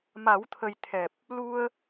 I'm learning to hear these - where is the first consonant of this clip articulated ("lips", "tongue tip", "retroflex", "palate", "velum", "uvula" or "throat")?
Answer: lips